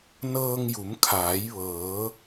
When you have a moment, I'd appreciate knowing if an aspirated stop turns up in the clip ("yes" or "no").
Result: yes